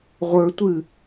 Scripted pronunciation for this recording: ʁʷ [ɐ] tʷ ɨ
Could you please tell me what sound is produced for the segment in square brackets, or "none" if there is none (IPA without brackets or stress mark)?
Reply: ə˞